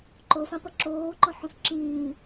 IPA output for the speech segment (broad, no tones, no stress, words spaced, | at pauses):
ǃofãpʌ ǁoːǃõħũs ǁĩː